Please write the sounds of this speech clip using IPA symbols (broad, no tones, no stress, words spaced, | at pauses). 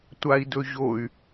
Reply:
tʷai̯dɵʑoy̯